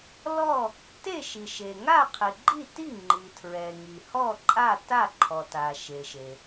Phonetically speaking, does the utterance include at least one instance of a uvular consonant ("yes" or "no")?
yes